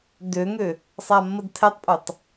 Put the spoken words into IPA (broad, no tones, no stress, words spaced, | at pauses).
døŋø | sˤamːədtʰɛtˤpʼøtˤ